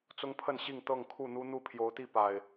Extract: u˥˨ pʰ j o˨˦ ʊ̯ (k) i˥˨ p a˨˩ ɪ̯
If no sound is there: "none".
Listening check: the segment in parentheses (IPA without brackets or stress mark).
t̪